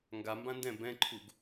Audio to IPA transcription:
ŋ ɡ a m b ã n d ɛ̃ b ɛ̃ ǃʰ u ɡ

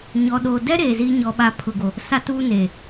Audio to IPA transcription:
ɲ ɔ˨ ɗ oː˨ d ɛ˦ ɾ eː˨ z iː˦ ɲ ɔ˨ ɓ a˨ pʰ ʊ˨ ɡ o˨ | s a˦ t uː˦ n eː˨

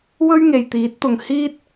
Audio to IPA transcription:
w ɵ˥ ɥ ŋ e˨ j t̪ iː˨˥ t̚ t̪ ʊ˨ ŋ h iː˥ t̚

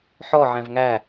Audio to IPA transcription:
ħ ɔ ʕ æ̃ v ŋ æ

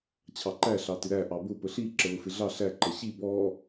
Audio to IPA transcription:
t͡ɕʰ ɑ ǃ æ ɬ ɑ t ɪ ɾ æ ʔ ɑ b ʊ p ə ɬ i ǁ ə l ʊ f ɪ ɮ ɑ ɬ æ ǃ ʌ ɕ i b ɔ

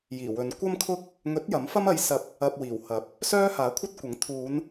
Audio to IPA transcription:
j iː˨˩ w ɵ˨˧ n kʷ ɐ˥ m kʰ ʊ˥ k̚ | ŋ ɵ˨˥ t̚ j ɐ˨˥ m f ɐ˥ m ɐ˨˧ j s ɐ˨˥ p̚ | ɐ˧ p̚ w iː˨˩ w h ɐ˨˥ p̚ | s œː˥ h aː˨˥ kʷʰ ɐ˥ t̚ kʷ ɐ˨˥ ŋ t̪ʰ uː˨˧ n

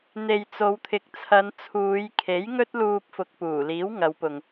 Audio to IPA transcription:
n̪ e˨ j t͡s o˨˧ w t̪ʰ ɪ˨ k̚ t͡sʰ ɐ˨˧ n t͡sʰ uː˨˧ j kʰ e˨˥ j ŋ ɵ˥ t̚ l uː˧ p̚ f ʊ˨ k̚ p uː˨˩ l iː˨˥ w ŋ ɐ˨˧ w p ʊ˨ ŋ

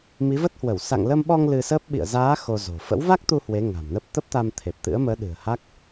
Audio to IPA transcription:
m i˨˦ v ə˦˥ t̚ h w ə˧˩ w s a̰˧˨ ŋ l ə˧ m ɓ ɔ˧ ŋ l ɨ˧ s ə˦˥ p̚ ɓ ḭ˧˨ ə̯ z aː˨˦ x o˧ z o̤˨˩ f ə̰˧˥ w v a˦˥ k̚ t̪ u˧ h w e˨˦ ŋ a̤˨˩ m n ə˦˥ p̚ t̪ ə˦˥ p̚ t̪ a˧ m t̪ʰ e˨˩ p̚ t̪ ɨ̰˧˥ ə̯ m əː˨˦ ɗ ɨ̤˨˩ ə̯ h a˦˥ k̚

